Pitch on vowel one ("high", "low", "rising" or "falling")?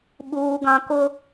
high